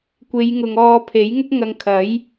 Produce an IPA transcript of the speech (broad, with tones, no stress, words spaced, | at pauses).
kʷe˨˧jŋʊ˨ŋ ɔː˧pʰe˨˥j ŋʊ˥k̚ŋɐ˧ŋkʰɐ˨˥j